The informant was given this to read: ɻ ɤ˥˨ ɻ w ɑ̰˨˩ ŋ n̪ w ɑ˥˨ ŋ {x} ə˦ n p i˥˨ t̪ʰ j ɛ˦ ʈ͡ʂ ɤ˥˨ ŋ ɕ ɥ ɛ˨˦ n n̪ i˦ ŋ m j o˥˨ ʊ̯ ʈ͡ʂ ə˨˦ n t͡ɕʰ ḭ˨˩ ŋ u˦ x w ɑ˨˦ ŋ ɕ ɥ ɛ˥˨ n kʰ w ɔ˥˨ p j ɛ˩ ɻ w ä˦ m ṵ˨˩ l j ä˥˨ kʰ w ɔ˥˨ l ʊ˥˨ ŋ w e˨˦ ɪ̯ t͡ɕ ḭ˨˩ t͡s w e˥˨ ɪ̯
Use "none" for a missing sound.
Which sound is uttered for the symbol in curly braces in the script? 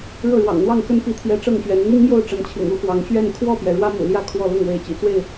x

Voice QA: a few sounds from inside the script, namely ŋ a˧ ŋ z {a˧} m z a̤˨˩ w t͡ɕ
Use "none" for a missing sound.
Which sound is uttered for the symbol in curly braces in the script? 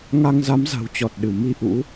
a˨˦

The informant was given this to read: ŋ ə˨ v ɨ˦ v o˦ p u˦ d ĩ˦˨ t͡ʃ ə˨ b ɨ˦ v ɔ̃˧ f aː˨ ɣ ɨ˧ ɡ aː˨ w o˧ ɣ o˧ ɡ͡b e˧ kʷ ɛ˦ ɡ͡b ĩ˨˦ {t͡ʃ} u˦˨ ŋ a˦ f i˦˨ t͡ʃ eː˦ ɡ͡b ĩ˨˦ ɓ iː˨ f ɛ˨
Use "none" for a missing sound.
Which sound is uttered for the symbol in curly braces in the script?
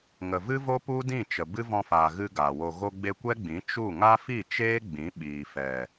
t͡ʃ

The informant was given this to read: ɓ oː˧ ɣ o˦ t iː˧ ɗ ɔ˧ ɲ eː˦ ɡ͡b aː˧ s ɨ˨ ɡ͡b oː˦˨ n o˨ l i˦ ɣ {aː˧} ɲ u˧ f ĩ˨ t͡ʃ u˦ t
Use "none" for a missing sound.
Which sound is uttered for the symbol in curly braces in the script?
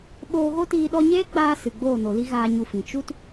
aː˧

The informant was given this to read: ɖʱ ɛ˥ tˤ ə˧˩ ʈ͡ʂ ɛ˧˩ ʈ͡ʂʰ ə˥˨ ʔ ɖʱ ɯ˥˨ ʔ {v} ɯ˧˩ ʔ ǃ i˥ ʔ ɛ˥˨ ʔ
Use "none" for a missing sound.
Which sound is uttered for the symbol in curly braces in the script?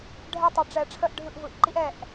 v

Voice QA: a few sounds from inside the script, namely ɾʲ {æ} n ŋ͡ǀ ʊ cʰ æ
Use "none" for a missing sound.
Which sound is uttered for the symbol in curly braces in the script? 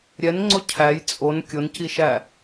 ɛ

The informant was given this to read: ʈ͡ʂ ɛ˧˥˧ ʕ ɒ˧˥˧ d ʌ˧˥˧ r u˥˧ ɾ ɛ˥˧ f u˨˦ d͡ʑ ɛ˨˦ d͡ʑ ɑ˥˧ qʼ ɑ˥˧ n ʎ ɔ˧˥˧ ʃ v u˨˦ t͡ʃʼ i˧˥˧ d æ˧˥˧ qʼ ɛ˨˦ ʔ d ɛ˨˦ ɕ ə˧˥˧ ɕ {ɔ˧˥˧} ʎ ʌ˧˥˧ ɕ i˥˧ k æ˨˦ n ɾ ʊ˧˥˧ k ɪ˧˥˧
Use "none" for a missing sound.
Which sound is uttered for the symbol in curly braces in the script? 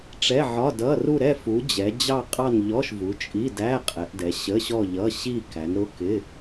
ɔ˥˧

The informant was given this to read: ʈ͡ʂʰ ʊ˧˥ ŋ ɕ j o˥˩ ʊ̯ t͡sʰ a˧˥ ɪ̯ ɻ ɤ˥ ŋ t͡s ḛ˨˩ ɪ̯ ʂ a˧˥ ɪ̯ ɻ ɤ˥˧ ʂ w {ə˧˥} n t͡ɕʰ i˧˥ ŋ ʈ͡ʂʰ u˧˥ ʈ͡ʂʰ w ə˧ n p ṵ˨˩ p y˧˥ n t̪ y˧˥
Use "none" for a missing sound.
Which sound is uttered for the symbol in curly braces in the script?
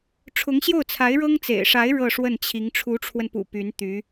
ə˥˩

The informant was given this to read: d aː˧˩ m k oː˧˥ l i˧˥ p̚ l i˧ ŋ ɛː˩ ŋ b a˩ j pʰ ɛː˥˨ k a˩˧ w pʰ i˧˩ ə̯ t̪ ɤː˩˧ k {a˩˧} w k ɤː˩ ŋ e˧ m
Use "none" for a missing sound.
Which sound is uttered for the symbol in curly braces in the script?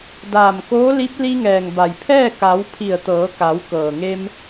a˩˧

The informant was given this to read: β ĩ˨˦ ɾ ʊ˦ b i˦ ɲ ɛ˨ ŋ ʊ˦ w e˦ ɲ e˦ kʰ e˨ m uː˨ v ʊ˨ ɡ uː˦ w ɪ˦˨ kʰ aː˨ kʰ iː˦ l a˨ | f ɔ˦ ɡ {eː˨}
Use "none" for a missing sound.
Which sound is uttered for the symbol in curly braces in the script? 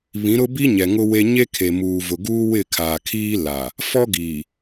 iː˨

